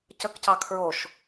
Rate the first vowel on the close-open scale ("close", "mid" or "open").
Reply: mid